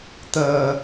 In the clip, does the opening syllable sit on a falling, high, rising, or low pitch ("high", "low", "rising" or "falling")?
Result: low